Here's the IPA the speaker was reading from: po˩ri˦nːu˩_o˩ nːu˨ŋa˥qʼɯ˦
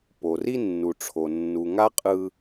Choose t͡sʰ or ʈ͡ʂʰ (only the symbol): ʈ͡ʂʰ